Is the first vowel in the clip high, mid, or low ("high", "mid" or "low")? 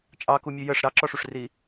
low